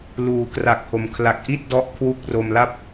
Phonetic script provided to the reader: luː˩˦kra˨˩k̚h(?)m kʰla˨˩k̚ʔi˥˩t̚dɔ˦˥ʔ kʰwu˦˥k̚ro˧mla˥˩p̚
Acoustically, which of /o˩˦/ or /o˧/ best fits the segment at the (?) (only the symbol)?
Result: o˩˦